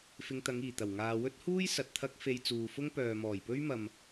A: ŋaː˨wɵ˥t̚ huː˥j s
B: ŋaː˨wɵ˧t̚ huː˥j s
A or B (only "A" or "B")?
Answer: A